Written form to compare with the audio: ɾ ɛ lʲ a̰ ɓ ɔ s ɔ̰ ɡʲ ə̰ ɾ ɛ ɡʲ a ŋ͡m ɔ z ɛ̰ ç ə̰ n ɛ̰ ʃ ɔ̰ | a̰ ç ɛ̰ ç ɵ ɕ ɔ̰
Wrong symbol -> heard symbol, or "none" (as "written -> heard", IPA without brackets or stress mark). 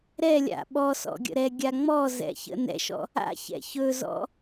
ɕ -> z